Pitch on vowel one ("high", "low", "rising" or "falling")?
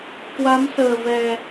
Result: rising